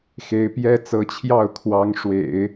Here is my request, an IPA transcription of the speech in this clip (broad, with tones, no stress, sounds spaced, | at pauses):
x e˧˥ ɪ̯ p j ɛ˥ t͡s ɤ˧˥ t͡ɕʰ j ɑ˥˩ ʊ̯ kʰ w ɑ˧˥ ŋ ʂ w ḛ˨˩˦ ɪ̯